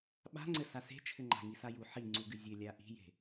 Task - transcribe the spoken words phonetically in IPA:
ɓa̤ŋ͡ǀɘ sase̤t͡ʃʰɘŋ͡ǃa̤ ŋisaju ħiŋ͡ǀuɡɨ zʲɘlʲa ʔi̤je̤

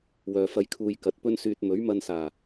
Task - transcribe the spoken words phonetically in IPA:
wœː˨fɐ˧j kʰuː˧jkɐ˨˥t̚pɵ˥n syː˧t̚ mɵ˨˥ɥmɐ˧nsaː˨˩

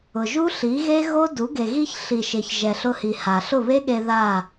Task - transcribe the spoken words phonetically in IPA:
ʊ˨ʒu˦ ɬi˨˦ɣe˦ ɣo˦du˨˦ ɡe˨ɣi˧ç ɬi˨ʃe˨ç ʒɛ˨ɬʊ˧hi˨ ha˨ɬʊ˦˨βe˦ɠe˧ ða˦˨

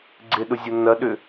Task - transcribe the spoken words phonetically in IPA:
ɡ͡ǀɪɗʊzʲʊ nɐɗʏ

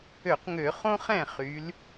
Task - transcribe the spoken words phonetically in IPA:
ø˧˩˧qŋø˧˩˧ χõ˥χɛ̃˥˩ χy˩˧l

